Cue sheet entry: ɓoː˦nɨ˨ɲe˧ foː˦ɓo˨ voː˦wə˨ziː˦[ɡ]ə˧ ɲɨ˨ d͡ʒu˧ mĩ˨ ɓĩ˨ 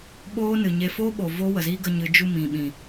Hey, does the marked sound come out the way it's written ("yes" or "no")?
yes